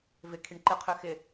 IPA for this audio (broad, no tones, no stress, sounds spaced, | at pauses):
v ɪ kʰ i ɳ ǃ ɪ qʰ ø x ɪ